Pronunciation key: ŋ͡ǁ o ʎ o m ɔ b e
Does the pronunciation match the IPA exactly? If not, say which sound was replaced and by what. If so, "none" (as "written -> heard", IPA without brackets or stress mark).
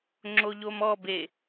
none